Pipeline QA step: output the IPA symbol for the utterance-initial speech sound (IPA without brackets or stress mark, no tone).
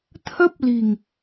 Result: t̪ʰ